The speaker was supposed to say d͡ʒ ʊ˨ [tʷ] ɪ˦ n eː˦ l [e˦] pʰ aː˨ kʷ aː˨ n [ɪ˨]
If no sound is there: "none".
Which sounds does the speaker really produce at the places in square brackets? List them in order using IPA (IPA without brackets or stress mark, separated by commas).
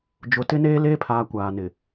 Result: t, eː˦, ɪ˨